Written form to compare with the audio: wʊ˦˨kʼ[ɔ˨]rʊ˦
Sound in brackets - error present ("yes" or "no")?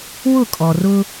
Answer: no